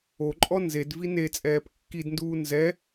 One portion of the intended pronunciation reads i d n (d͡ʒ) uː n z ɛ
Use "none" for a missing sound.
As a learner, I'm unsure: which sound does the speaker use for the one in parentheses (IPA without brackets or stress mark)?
d